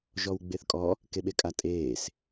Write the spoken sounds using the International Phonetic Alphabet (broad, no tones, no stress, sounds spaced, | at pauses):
ʒ ɔ w ɡ͡b e θ kʼ ɔ | k e ɓ e kʼ a tʼ eː s